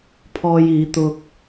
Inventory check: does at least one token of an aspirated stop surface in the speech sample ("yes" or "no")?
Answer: yes